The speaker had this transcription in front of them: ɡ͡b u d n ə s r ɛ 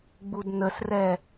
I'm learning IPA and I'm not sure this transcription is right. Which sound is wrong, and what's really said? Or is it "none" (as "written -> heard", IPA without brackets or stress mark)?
none